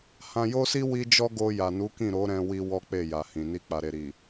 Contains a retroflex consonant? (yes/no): no